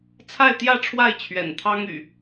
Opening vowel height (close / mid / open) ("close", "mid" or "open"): open